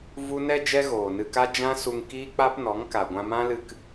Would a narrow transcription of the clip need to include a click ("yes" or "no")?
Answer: no